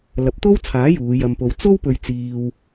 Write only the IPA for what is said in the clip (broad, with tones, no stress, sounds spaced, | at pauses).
l ɐ˨˥ p̚ t̪ o˥ w t͡sʰ aː˨˥ j uː˨˧ j ɐ˧ m p o˧ w t͡s o˥ w p ɵ˧ ɥ t͡s iː˧ w